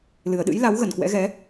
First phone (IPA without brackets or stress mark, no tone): l